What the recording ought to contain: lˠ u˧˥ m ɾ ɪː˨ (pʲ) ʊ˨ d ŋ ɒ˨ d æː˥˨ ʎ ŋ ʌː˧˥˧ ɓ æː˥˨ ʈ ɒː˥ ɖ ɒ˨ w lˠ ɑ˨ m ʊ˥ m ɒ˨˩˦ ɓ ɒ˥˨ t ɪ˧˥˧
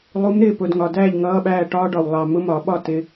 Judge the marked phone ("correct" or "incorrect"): incorrect